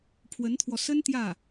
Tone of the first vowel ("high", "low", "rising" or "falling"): rising